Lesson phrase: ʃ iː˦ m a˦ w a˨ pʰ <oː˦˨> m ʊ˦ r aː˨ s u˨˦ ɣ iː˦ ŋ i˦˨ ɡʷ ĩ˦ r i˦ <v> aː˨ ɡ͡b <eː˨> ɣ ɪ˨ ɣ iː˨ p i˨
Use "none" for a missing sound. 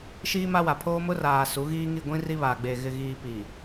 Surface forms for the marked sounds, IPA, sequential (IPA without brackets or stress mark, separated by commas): oː˦, β, eː˨